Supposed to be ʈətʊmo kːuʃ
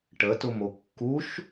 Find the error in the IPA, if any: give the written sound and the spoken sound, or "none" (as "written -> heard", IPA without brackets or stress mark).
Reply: none